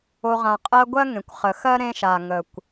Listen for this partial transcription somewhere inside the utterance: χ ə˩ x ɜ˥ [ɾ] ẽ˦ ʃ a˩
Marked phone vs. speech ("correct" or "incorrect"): correct